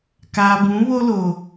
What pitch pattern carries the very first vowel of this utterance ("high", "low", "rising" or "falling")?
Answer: low